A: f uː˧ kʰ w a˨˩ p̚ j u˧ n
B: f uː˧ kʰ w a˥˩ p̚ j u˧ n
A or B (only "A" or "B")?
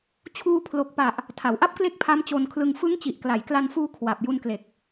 A